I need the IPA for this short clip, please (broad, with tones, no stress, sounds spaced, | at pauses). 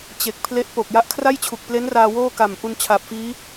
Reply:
t͡ɕ e˨˩ k̚ pʰ l e˦˥ ʔ p o˨˩ k̚ j a˦˥ ʔ kʰ r a˥˩ j t͡ɕʰ u˨˩ k̚ p l e˦˥ n r aː˧ w oː˥˩ k a˨˩ m ʔ u˧ n t͡ɕʰ a˨˩ p̚ f iː˦˥